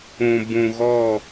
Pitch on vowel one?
low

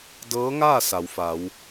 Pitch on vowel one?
rising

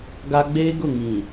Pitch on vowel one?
high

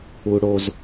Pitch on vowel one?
high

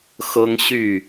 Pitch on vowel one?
high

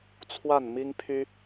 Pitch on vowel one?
falling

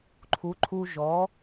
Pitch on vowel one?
rising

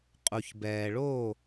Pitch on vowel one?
low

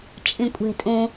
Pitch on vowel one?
low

